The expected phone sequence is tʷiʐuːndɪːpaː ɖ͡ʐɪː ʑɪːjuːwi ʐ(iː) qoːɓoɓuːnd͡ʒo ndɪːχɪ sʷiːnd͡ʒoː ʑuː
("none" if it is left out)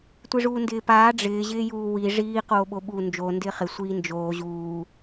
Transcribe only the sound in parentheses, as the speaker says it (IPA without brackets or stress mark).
iː